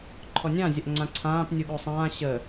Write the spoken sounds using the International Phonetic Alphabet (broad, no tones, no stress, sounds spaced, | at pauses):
ǃʰ ɔ nʲ ã zʲ ə ʔ ŋ͡ǀ ã ǀʰ ãː p nʲ u ɠ o sˤ ãː ɕ ə